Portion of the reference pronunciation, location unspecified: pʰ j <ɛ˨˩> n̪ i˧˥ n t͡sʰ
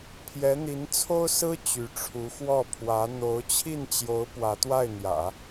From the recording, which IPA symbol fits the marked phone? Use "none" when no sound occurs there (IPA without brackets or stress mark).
ɛ˧˥